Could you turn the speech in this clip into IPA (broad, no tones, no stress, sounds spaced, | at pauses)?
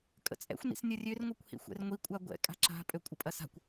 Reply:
kʼ ə̰ t͡sʼ ɛ̰ xʷ n ḭ s nʲ ɐ rʲ ø r ŋʷ ɛ kʷ h ḭ xʷ ɛ̰ r ŋʷ i kʷʼ a ɡʷ ɛ̰ kʼ a̤ ǁ a̤ pʼ ø kʷʼ ə pʼ ɐ s a̤ kʷ